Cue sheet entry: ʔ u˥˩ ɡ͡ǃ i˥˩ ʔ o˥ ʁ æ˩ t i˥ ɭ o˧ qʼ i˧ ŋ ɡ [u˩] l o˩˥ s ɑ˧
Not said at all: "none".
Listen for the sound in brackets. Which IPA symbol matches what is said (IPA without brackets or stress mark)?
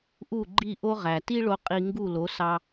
u˥˩